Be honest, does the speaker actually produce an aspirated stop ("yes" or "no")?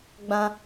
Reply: no